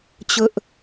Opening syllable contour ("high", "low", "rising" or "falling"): high